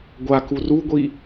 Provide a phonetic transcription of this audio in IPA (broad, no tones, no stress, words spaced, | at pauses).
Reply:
ɡʷaku ruɡʷi